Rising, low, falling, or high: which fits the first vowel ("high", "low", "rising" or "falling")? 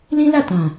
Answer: high